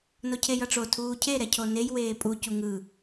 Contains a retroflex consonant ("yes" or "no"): yes